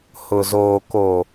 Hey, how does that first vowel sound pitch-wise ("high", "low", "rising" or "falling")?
low